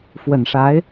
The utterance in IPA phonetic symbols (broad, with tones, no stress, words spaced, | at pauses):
fwə˨˩nʂa˧˥ɪ̯